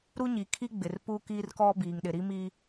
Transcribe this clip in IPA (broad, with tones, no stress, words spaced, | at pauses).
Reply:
ɾu˦ɲi˨kʰi˦ ɡ͡bɪ˨rpu˦kiː˦rkɔ˦ biː˨ŋɗɪ˨ɾi˦mi˦